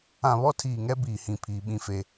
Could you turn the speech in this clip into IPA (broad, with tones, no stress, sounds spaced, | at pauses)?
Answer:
ã˨ β ɔ˦ tʰ iː˨ ŋ ɛ˦ b iː˨ h ĩ˨ pʰ iː˦ ɓ ĩ˦ f e˦